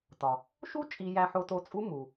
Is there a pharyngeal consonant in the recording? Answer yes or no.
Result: yes